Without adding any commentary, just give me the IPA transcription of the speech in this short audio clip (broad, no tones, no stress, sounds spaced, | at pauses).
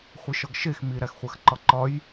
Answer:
χʷ i ʃ ɒ ɡ ʃ e x m i ɾ æ x χʷ æ x ǃ ɒ ǃ ɒ j